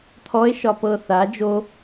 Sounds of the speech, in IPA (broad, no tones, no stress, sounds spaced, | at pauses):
t̪ʰ ɔ e̯ ʃ ɒ p ɤ θ a d͡ʒ o